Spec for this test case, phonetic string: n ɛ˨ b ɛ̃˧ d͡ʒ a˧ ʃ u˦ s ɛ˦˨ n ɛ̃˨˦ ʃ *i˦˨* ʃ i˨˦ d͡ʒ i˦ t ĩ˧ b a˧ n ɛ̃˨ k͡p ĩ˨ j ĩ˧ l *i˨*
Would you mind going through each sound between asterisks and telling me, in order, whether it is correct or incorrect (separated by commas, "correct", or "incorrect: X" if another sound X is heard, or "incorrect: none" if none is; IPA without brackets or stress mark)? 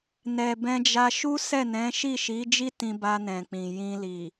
correct, correct